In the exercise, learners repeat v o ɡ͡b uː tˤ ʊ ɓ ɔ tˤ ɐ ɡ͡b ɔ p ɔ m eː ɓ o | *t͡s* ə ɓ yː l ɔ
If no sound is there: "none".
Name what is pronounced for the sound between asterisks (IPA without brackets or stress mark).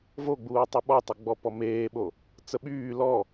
t͡s